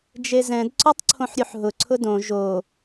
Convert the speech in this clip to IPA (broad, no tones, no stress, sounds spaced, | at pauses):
d͡ʒ e z ɛ̃ d ǀ ɔ tˤ ǀʰ õ ħ ɾʲ u ħ ɦ ʊ ǀʰ ʊ d õ ʒ o